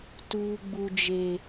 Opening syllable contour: high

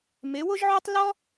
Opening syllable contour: rising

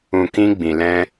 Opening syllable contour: low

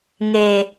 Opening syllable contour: low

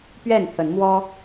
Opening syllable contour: falling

